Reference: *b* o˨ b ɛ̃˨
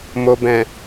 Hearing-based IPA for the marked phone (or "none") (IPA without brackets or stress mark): m